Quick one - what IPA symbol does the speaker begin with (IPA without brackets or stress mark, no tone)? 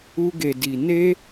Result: u